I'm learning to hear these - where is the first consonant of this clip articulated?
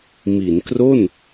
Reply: lips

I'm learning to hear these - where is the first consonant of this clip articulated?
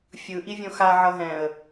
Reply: lips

